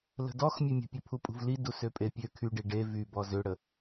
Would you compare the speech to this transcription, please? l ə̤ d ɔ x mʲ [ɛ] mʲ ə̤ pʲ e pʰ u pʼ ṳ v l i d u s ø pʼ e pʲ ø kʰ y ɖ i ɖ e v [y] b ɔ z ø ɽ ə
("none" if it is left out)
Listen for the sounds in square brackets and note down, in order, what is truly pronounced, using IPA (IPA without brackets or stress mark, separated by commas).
ø, y